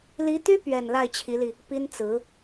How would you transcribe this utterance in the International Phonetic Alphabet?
li˧˥t̪y˥ pɥɛ˥˧n la˥˩ɪ̯t͡ɕʰi˧˥li˧ | pi˥nt͡sɹ̩˧˥

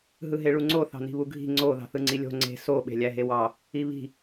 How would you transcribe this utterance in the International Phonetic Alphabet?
ɦɯɦeɭuŋ͡ǀo θɑ̤ni̤βuɡʱi̤ ŋ͡ǀo ðɑ̤θɯŋ͡ǀilʲo̤ ŋ͡ǀe̤ so ɓe̤lʲæɦewɑ | iβi̤

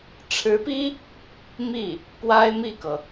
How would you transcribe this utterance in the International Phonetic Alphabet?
ʈ͡ʂʰɻ̩˧˥pi˥ | mi˥˩ | pwa˥ɪ̯mi˥˩kɤ˩

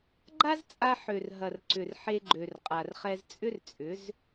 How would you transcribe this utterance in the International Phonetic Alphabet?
ɡ͡ǃa˦zt͡sʼa˧ ħø˨rɦɐ˨rǀʏ˨r ħe˧ɡ͡ǃø˨rqʼa˨rχɛ˧z t͡sʼʏ˦rt͡sʼʏ˨˦z

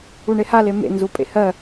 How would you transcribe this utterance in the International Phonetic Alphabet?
uɳeha lemḛ nzupʼḛhɜ

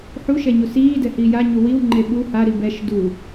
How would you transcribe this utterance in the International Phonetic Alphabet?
ħuʃɛ ɲusiːdɛ hiːja ɲuwiw ŋ͡ǃeɓu ha ɾibɛʃ du

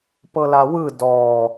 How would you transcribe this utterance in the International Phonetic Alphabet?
pɤlawɯ dɔ

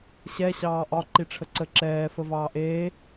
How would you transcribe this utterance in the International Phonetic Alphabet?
ɕɛ ɕɑːʔɒ ǃiʈ͡ʂʰəǀə ǁɛː fəvɑːʔeː

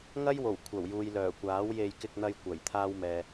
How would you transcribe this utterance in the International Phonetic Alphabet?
ŋɐ˥jwo˨˩w kʷʰɐ˨˩wjuː˨j lœː˨˩kʷaː˨˥wje˧j kɪ˧k̚n̪ɐ˧jkʷɐ˨˩j t̪ʰaː˥wmɛː˨

